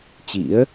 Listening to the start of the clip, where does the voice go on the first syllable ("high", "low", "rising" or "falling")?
rising